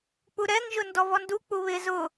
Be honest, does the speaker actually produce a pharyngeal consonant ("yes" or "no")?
no